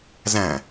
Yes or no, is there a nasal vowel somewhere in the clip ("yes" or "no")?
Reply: yes